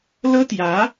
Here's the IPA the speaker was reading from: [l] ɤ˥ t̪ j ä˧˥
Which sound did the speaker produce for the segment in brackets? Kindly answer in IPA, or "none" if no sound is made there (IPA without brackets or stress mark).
l